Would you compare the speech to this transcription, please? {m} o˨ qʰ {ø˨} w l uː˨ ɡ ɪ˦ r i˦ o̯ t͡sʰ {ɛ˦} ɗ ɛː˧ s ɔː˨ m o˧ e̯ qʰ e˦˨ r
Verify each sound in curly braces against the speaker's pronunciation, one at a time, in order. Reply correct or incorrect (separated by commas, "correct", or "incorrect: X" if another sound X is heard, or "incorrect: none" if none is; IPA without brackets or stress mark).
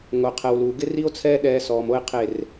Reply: incorrect: ŋ, incorrect: ɛ˨, incorrect: ɛː˦